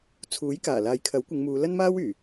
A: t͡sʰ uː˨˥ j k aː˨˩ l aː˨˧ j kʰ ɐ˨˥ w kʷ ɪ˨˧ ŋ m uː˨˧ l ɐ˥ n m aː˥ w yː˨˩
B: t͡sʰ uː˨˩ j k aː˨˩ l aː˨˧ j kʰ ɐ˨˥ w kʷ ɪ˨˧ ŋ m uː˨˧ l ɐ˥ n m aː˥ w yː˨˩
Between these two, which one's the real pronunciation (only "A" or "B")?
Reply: A